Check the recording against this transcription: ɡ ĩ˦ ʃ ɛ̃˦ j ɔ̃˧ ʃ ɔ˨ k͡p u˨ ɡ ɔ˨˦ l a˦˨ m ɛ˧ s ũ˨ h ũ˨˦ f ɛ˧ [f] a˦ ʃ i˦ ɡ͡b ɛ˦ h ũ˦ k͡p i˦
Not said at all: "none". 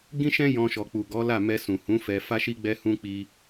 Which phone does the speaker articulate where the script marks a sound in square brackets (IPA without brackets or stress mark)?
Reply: f